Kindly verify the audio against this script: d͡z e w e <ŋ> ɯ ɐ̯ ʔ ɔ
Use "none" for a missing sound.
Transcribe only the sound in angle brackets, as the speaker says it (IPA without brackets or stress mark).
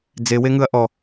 ŋ